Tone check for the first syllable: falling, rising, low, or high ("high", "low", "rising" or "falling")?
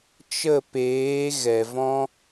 falling